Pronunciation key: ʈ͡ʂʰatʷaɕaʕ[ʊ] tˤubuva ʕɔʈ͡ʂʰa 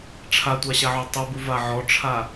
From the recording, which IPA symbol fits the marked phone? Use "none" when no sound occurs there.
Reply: ɔ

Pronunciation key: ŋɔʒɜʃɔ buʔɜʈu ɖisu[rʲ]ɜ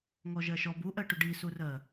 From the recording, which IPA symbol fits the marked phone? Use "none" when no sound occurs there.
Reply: r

